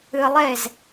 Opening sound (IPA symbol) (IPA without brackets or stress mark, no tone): ɨ